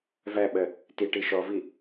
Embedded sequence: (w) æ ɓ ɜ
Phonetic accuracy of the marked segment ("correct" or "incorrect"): incorrect